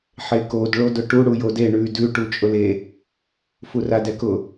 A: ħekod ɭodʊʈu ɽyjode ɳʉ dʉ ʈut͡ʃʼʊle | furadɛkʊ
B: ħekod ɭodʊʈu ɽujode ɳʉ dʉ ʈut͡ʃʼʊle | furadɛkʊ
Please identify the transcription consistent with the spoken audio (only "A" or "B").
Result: B